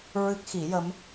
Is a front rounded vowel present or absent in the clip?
absent